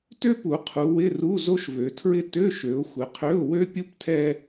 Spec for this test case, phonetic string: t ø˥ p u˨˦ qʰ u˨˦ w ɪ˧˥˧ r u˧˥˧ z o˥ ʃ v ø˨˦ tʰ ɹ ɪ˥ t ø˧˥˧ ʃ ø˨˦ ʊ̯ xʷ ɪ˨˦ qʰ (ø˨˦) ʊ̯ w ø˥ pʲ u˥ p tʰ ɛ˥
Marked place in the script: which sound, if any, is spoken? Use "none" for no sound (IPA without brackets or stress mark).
ø˧˥˧